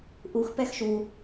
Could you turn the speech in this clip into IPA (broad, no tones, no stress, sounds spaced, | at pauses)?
ʔ u x p ɛ x ʃ u